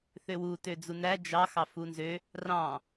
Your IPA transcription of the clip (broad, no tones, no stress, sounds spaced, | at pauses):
θ ø w u t ø d͡z u n æ d͡ʒ ɑ x ɑ f u n z ø | r ɑ̃